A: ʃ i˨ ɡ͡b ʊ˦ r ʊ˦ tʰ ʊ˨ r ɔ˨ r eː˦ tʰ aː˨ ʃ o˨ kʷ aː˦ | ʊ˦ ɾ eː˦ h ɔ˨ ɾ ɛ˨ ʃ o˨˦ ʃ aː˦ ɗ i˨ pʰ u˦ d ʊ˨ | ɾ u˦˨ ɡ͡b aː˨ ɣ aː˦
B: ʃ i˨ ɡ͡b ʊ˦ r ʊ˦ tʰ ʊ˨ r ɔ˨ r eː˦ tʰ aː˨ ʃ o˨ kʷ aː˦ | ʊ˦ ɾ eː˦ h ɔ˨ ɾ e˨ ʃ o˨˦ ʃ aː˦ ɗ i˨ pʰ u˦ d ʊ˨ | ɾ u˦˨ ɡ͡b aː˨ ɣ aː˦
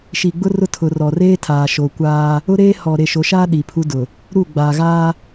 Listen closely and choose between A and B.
B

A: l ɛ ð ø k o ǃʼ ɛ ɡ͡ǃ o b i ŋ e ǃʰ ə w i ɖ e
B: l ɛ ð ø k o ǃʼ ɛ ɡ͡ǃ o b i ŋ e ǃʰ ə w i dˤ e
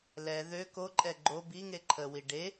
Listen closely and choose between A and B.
A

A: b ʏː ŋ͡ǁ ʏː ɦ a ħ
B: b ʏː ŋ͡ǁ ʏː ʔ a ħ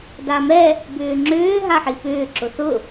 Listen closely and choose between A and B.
A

